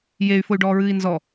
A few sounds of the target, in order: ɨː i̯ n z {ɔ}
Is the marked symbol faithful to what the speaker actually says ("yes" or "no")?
yes